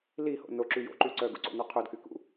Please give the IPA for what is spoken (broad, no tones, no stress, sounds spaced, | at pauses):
l i h o̰ n o ǁ y j o̰ ǃ y ǀ œ ɡ ṵ ǀ o̰ n œ qʰ o d k y k ṵ